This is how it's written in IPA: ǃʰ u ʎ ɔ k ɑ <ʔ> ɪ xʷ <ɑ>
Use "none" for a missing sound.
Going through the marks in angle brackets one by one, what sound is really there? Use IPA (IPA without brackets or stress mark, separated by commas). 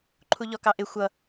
ʔ, ʌ